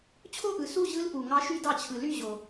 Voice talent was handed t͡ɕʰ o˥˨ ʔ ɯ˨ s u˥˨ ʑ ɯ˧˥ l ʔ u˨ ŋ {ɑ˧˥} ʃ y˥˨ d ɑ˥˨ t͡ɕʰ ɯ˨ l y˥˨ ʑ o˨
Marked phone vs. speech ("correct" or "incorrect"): correct